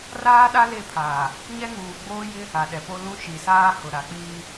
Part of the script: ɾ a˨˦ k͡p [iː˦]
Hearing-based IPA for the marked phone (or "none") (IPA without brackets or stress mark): iː˦